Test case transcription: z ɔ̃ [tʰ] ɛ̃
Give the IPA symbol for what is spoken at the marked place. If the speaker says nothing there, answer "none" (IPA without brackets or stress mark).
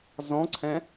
ǀʰ